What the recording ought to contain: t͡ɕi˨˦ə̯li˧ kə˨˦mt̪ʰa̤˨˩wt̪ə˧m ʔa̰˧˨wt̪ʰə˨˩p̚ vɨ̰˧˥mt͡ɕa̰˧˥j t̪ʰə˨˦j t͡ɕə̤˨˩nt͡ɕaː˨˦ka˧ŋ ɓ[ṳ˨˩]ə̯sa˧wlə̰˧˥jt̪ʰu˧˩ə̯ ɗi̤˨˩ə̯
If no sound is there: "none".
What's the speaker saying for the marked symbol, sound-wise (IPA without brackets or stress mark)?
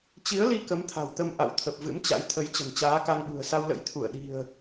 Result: ṳ˨˩